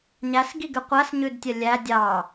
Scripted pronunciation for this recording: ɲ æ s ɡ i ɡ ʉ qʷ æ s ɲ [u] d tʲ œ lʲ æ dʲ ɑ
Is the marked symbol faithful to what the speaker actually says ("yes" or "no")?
no